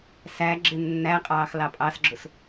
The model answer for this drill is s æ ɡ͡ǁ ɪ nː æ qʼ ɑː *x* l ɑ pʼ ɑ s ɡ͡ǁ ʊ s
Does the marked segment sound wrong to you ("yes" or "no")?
no